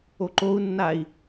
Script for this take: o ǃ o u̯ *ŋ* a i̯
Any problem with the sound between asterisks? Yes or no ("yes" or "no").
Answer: yes